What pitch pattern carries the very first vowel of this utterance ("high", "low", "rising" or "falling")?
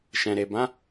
low